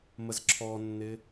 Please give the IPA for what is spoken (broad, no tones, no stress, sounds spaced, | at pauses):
m ə z ǁʰ ɔ nː ɪ